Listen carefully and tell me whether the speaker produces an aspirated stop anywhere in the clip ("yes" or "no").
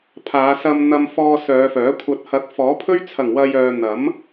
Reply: yes